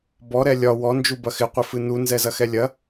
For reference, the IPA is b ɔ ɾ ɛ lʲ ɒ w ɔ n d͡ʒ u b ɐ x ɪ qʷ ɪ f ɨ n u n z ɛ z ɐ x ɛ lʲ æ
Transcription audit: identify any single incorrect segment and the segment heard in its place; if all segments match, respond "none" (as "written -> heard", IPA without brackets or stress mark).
æ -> ɐ